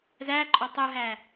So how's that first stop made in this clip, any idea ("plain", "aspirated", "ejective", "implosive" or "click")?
click